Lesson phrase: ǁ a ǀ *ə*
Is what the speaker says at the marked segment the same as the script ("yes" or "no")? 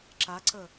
yes